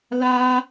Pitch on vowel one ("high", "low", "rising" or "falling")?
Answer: high